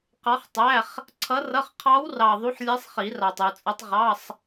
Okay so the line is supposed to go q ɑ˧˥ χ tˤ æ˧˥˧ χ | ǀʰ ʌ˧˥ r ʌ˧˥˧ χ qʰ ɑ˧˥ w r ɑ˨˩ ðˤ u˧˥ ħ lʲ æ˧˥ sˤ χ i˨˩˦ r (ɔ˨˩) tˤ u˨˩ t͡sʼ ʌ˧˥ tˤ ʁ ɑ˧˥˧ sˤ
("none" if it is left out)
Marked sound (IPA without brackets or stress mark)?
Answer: ɑ˨˩